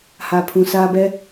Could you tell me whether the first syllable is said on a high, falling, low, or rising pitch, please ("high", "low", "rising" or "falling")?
low